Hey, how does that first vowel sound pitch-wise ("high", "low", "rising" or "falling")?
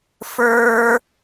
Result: high